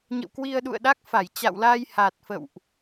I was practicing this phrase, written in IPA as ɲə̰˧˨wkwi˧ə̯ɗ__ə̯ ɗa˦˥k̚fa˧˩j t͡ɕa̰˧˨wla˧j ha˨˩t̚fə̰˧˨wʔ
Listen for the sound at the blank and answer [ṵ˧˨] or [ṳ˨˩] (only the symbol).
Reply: ṵ˧˨